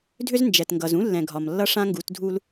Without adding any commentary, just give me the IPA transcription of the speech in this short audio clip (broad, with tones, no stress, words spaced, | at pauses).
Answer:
dʱʏ˦znd͡ʒɛ˨tŋɡʌ˨z ũ˦lːɛ̃˨ ɡʱɒ˨mlːʌ˦ʂã˦ŋɡu˨˦t dʱu˦l